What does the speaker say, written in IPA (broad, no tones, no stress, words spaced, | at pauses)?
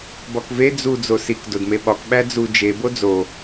bɒkve d͡zu d͡zosik dodmeɓɒk ɓæd͡zu d͡ʒe bod͡zo